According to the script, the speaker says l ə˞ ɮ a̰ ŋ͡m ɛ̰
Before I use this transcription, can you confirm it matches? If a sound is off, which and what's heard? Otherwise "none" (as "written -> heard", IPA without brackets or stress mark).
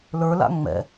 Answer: ɮ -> l